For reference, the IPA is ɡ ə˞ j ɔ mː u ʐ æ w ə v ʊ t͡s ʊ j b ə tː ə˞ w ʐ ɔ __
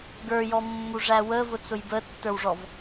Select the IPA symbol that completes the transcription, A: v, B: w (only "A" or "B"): A